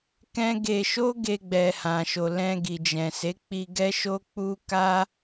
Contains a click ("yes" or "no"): no